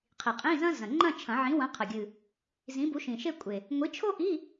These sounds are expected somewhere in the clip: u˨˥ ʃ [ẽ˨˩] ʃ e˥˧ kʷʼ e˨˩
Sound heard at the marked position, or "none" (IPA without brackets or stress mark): ĩ˨˩